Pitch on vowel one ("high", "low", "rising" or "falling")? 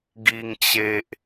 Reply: high